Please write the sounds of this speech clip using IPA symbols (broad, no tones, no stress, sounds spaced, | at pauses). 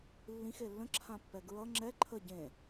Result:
lː ĩ x e lː ə̃ ǁʰ ã pː ɛ ɡ ɹ ʌ ŋ͡ǁ ɛ ǃʰ ə ɟ ẽ